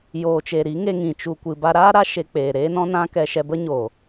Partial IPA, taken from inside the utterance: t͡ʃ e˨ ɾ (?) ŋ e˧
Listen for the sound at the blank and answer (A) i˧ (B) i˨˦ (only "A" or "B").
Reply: B